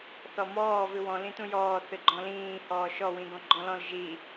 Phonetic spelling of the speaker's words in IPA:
θɔmɔː vɨwɔ̃ lĩtũjɔː θɨɡ͡ǃɔ̃lĩː hɔːʃɔ wĩɡɔ̃ɡ͡ǃɔ̃lɔ̃l ʒi

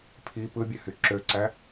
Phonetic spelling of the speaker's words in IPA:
pʰi pɯbʲøhy ǁøǀæ

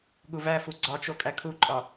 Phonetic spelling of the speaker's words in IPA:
ɠuvæfu ɡ͡ǀɒt͡ʃo kʼækʰuǃʼɒ

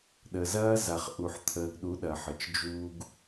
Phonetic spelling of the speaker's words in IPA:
ɗə˨zɐː˦ za˨χʔu˨ħ t̪ʰəː˨ɡɗu˨˦ ɗɐ˨ħə˨t͡ʃ d͡ʒuː˦ɡ

